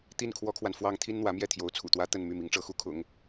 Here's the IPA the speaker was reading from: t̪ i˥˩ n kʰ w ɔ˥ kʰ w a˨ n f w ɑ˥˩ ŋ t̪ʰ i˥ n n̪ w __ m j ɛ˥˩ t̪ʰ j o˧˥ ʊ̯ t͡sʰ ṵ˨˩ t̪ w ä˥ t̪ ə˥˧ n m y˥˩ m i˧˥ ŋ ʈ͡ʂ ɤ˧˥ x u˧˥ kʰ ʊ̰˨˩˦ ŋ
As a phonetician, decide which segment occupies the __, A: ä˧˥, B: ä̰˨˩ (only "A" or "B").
A